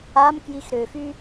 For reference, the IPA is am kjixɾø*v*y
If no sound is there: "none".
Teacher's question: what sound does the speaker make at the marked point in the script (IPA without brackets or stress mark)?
f